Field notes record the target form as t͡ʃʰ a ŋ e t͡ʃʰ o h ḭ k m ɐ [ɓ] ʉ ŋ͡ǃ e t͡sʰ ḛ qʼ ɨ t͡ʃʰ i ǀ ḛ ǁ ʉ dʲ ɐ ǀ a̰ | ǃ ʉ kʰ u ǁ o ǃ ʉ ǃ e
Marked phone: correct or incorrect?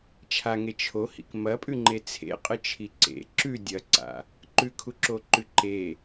incorrect: pʼ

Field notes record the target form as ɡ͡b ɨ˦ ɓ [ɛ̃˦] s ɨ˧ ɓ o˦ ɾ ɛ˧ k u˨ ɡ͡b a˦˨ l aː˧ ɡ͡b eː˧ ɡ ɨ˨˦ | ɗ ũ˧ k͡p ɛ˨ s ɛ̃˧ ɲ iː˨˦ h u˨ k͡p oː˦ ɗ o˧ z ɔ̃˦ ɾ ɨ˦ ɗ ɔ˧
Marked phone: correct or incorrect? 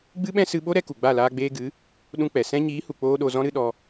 correct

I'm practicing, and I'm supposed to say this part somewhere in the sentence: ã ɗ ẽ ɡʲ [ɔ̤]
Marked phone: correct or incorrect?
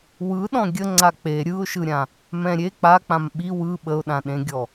incorrect: ɔ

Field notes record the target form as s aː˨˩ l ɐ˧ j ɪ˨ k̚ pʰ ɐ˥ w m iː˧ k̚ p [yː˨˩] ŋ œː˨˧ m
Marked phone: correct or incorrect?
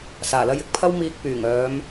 correct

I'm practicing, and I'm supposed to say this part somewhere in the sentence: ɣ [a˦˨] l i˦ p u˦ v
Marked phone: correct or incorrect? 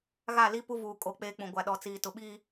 correct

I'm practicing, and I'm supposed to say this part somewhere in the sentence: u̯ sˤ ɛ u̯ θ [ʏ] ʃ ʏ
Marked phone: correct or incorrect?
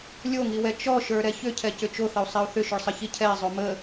correct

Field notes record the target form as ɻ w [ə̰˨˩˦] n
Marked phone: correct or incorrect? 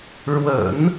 correct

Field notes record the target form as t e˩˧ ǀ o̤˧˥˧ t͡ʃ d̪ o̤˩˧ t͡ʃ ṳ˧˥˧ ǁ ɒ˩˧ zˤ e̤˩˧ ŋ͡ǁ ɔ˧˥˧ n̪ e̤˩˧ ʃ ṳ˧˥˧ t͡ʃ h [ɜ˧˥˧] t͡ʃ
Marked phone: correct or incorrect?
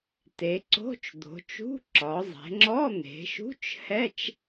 incorrect: ɛ˧˥˧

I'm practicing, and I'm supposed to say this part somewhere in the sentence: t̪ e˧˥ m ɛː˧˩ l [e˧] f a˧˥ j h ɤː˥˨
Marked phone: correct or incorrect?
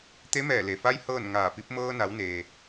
incorrect: e˩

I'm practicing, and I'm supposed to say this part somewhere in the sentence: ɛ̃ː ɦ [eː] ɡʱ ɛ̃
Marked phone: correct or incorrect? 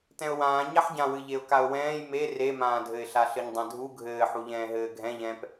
incorrect: ɘː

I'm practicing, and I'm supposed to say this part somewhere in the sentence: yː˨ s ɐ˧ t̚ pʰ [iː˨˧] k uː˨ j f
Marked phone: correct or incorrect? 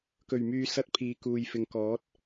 correct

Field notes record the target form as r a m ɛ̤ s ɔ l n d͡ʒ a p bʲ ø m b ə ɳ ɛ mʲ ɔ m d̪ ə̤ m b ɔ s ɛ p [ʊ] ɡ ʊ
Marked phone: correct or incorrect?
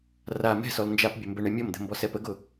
incorrect: ə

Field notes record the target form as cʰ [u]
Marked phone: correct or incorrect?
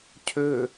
incorrect: ø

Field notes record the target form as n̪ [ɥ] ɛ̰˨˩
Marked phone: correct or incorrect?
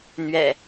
correct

